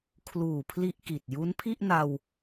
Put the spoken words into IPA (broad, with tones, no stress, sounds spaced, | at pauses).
kʰ l uː˨˩ pʰ l i˥˩ ʔ k i˨˩ t̚ j u˦˥ n pʰ i˥˩ ʔ n a˧ w